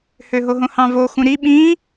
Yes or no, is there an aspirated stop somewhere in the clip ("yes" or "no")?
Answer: no